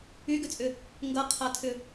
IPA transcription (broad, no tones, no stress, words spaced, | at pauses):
yɡʏt͡sʼʏ | ŋɡʌqʰatʰʏ